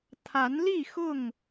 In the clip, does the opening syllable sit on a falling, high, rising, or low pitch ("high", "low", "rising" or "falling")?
rising